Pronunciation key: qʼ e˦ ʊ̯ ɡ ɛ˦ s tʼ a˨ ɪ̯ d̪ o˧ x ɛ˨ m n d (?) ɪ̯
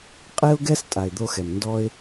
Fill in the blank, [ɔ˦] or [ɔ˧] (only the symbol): ɔ˦